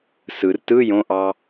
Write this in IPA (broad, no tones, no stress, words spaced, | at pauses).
sɯr tɯ jõʔɑ